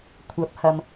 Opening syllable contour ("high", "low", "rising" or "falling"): rising